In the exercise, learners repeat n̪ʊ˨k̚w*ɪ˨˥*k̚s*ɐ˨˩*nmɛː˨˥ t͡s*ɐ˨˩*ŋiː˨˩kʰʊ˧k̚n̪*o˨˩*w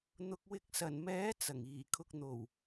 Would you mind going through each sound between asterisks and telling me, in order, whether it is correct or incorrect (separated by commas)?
correct, correct, correct, correct